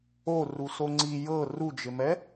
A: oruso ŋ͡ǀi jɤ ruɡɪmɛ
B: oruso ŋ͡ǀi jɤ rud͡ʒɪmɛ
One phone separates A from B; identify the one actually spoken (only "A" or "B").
B